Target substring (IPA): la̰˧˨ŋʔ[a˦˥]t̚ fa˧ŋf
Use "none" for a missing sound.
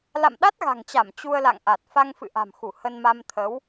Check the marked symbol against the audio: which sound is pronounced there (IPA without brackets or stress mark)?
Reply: a˨˩